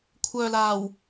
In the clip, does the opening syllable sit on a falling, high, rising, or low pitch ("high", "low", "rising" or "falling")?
low